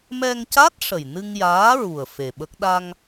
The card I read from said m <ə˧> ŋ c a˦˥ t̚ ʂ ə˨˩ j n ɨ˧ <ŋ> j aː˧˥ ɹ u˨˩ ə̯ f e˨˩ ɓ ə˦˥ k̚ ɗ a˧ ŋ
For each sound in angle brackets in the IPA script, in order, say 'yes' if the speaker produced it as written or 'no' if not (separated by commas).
no, yes